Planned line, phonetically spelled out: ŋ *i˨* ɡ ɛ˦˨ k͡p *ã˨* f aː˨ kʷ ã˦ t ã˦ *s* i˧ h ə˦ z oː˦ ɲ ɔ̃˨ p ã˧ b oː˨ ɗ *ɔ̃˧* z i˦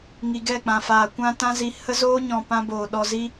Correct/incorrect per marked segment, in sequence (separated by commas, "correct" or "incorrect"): correct, correct, incorrect, incorrect